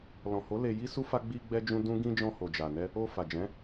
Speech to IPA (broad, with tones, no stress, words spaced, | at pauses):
lɔ̃˨ho˨˦ le˧ji˦su˦fa˦ ɡ͡bi˧ɡ͡bɛ˧d͡ʒũ˧ dũ˦ɡĩ˦ d͡ʒɔ̃˧ho˨d͡ʒa˨nɛ˧ | o˧ fa˨d͡ʒɛ̃˨˦